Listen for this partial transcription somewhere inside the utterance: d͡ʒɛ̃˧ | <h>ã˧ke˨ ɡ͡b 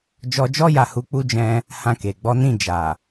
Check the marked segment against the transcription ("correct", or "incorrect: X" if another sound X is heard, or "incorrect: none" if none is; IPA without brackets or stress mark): correct